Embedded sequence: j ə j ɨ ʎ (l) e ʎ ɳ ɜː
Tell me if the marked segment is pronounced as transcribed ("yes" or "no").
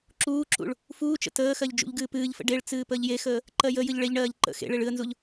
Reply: no